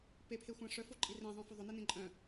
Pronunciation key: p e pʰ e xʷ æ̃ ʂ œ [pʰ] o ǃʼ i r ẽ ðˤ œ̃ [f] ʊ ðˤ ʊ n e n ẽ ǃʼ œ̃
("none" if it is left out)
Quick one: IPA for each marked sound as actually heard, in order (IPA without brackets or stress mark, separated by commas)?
f, f